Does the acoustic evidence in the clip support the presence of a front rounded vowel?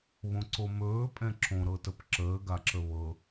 no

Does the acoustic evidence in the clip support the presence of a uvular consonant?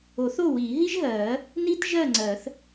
no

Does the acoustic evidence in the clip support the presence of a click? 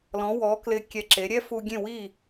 yes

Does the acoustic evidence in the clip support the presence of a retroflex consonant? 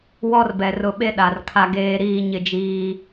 no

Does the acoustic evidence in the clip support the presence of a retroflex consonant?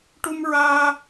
yes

